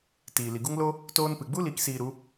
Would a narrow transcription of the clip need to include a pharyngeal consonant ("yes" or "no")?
no